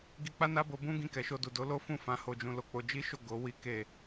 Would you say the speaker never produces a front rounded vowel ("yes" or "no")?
yes